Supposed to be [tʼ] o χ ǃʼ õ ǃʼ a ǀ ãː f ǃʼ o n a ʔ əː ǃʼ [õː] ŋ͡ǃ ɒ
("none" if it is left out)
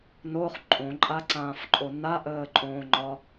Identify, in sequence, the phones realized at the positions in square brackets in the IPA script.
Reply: n, õː

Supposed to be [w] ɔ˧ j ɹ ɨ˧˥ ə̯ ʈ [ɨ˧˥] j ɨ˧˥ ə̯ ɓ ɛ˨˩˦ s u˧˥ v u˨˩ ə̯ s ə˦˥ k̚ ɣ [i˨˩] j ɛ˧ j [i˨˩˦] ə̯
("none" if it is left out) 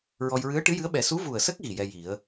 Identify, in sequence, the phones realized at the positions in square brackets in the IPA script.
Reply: ɹ, ɨ˧˥, i˨˩, i˨˩˦

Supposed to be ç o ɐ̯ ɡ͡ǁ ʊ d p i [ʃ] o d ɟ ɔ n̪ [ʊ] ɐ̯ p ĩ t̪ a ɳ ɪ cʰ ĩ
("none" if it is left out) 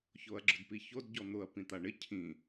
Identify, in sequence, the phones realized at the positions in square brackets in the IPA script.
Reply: ç, ʊ

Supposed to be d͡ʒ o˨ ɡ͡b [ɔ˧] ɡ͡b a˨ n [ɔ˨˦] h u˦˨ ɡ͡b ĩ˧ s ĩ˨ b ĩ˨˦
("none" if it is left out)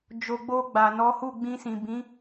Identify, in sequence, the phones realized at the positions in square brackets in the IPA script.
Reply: o˧, ɔ˨˦

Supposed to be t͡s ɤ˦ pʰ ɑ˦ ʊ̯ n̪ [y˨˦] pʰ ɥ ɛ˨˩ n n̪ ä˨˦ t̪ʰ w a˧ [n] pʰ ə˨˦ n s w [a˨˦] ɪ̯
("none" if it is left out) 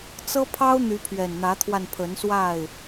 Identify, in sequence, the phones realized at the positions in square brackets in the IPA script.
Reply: y˨˦, n, a˥˨

